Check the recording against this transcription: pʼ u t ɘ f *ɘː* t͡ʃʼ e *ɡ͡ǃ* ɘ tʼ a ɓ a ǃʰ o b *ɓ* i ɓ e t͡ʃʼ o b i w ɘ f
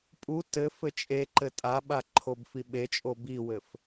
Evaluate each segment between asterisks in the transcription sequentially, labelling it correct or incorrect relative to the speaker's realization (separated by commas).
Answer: incorrect, incorrect, incorrect